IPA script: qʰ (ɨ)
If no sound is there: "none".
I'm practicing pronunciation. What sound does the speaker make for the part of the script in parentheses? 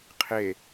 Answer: e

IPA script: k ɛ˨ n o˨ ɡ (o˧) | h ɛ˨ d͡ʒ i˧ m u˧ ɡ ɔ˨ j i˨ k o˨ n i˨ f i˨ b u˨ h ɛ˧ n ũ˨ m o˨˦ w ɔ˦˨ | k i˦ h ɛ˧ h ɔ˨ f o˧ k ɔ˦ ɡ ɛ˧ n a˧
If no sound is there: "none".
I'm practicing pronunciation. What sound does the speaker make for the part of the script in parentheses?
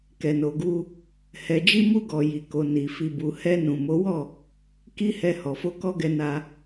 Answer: u˧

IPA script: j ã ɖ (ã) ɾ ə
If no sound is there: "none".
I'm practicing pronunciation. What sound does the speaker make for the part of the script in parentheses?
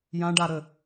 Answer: a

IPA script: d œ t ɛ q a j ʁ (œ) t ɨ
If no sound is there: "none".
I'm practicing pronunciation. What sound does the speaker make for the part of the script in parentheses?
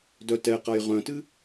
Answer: œ̃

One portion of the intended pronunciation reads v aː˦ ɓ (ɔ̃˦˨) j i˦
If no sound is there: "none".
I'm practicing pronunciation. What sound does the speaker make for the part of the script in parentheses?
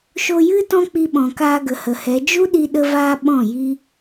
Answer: ɔ̃˦˨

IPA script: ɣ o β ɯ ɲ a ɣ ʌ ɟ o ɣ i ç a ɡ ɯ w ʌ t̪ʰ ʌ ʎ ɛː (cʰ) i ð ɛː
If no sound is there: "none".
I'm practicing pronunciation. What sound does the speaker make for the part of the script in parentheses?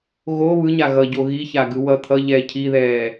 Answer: cʰ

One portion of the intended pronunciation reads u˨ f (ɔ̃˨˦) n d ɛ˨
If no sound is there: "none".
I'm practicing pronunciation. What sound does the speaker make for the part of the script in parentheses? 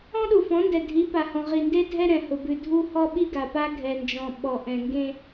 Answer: ɔ̃˨˦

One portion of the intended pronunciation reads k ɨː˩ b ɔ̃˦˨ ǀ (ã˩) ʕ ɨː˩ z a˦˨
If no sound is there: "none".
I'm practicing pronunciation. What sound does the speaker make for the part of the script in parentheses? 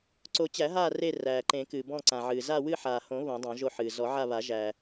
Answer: ã˩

